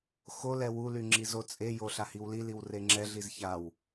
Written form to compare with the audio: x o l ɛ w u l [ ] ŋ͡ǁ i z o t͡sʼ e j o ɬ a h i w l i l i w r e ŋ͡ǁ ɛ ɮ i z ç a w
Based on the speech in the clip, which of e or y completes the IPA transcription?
y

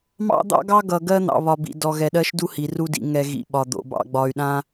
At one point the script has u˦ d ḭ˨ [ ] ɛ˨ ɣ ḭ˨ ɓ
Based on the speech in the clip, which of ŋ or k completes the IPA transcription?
ŋ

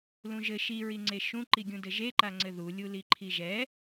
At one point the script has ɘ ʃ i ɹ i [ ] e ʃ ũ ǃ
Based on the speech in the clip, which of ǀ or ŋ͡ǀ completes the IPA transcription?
ŋ͡ǀ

